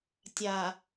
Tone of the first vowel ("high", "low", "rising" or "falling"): low